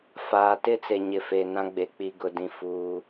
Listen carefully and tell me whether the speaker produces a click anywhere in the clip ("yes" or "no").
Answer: no